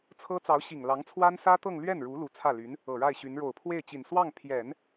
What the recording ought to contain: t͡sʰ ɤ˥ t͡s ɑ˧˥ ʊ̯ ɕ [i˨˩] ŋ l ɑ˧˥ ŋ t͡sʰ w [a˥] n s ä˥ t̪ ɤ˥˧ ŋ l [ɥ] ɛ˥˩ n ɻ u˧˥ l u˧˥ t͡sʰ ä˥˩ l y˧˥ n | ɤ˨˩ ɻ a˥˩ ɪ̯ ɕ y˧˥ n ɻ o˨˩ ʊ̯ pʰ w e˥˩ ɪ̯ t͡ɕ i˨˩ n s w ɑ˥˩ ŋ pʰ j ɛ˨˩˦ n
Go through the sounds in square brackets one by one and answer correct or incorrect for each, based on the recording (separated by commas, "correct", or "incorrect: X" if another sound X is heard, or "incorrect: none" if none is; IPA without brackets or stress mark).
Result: correct, correct, correct